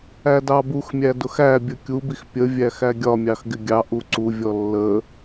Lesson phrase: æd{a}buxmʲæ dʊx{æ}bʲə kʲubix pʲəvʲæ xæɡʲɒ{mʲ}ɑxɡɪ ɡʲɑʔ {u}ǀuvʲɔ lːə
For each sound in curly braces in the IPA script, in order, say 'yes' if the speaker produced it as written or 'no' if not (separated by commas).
no, yes, yes, yes